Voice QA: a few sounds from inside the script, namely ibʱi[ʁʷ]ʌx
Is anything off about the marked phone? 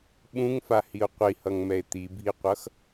yes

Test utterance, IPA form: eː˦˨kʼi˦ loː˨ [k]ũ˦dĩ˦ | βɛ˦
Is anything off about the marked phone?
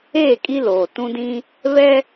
yes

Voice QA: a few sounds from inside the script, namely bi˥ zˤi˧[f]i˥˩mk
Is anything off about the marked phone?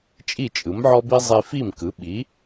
no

